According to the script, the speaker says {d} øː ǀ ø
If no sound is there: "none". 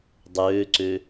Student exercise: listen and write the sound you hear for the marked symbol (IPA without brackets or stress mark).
dˤ